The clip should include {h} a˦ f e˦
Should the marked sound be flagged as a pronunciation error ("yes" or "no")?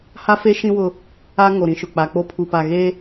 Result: no